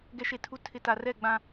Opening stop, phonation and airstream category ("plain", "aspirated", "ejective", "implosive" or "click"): plain